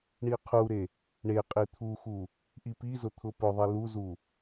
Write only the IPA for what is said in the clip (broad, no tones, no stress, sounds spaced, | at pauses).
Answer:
ɳ i qʰ u ɾ e | ɳ e qʼ i t̪ʰ u x u | ʔ i p i z ʊ t̪ʰ ʊ p ʊ ðˤ i l u z u